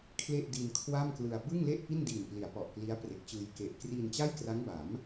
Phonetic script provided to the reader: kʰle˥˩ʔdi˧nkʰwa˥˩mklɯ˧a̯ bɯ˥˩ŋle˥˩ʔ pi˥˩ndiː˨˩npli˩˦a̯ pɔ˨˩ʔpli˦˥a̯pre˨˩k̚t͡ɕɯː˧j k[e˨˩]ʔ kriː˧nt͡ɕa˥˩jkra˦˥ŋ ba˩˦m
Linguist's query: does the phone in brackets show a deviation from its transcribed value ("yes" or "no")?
no